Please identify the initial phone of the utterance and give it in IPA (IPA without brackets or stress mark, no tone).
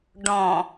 ɖ